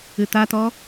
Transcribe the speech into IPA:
ɨ t a t ɔ

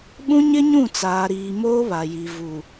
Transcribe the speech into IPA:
ɓ ũ˦ ɲ ɪ˦ ɲ ũ˦˨ t͡s aː˨ ɾ iː˨ m oː˦ β a˨ j i˨ v u˨

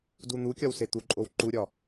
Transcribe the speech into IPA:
d u n̪ u kʲ ɒ w s e t̪ u ǃʼ o w ǃ u ɾʲ ɒ

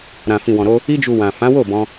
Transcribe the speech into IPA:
ɾ ã˨ f ĩ˨ w ɔ̃˨ ɾ o˧ | i˧ d͡ʒ u˨ w ã˨ f ã˨˦ w o˦˨ b ɔ̃˧

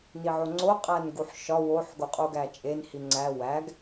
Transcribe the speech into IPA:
n i ʕ o ŋ͡ǀ o qʼ æ n ɡ u ħ ʃ ɒ w o ħ ɡ o qʼ u ɡ æ t͡ʃʼ e n h i ŋ͡ǀ æ w æ ɡ

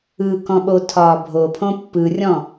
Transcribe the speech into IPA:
ɯ k ɔ̃ ɓ o tʰ ɒː bʱ o pʰ õ pː ɯ rʲ ɔ̃

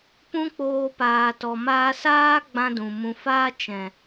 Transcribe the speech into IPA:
p ũ˦ k͡p oː˧ p aː˨ t ɔ˨ m aː˧ s aː˦ ɡ͡b ã˦ d ũ˨ m ũ˨ f aː˦ t͡ʃ ɛ̃˨

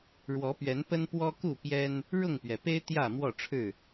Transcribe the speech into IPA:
ɻ w ɔ˨˦ p ɥ ɛ˨˦ n p ə˦ n p w ɔ˦ k u˥˨ p j ɛ˦ n | ɻ ʊ˥˨ ŋ p ɥ ɛ˩ p e˦ ɪ̯ t̪ j ä˥˨ m w ɔ˥˨ ʈ͡ʂʰ ɻ̩˥˨

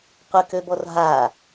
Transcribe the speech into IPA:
qʷ ə k ø b ɔ r ɦ a

